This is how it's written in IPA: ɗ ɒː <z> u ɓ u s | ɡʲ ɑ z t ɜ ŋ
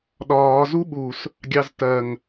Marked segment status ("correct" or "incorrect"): correct